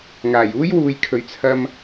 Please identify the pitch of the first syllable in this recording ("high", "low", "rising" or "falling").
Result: low